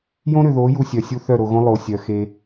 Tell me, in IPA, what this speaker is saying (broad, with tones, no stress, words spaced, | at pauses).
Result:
jõ˦ɾʏ˨ðo˨˦ ju˧sʲœ˨sʲu˦θœ˦˨ ɾo˨ɣõ˦ lˠo˨sʲœ˨ xe˧